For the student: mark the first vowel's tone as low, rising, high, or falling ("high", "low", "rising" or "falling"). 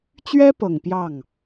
high